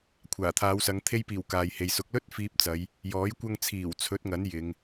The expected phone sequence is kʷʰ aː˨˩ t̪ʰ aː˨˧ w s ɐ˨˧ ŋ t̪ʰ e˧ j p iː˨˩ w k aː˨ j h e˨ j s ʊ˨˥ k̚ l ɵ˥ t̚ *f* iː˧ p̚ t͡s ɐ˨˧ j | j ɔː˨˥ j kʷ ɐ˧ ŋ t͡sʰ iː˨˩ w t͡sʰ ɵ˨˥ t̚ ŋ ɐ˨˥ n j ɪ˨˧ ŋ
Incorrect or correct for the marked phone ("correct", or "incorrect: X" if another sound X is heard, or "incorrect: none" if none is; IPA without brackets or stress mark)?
correct